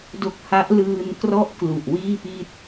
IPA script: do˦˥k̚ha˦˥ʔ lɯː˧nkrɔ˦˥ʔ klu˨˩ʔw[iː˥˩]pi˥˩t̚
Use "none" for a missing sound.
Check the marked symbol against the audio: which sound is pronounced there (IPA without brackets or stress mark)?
iː˥˩